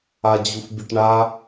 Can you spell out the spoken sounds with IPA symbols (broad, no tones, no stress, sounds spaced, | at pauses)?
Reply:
a d͡ʑ u f bʲ ə ʈ ɳ a